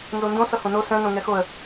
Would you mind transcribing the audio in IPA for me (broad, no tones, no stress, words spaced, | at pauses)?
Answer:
nzondõ sʌhõno sɛ̃ nõŋɛxoə̯